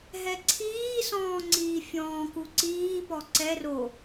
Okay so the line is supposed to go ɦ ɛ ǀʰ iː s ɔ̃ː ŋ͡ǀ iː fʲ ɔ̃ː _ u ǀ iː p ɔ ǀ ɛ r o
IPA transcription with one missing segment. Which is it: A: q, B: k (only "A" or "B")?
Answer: B